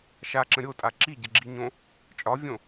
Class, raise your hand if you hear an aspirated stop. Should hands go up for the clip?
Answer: no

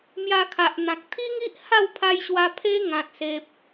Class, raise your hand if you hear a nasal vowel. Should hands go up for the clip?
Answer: yes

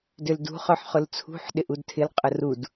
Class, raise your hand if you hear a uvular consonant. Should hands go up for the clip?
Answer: yes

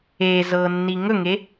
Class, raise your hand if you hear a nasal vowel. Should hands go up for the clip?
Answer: no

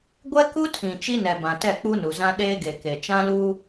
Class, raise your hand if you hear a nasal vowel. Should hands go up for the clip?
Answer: yes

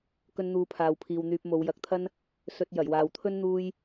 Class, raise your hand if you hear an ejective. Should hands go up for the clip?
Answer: no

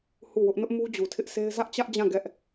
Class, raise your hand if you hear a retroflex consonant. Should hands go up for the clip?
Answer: no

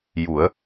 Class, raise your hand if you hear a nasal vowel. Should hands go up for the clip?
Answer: no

